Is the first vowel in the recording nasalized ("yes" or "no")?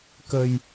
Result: no